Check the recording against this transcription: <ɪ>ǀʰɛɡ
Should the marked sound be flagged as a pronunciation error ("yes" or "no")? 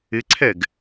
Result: no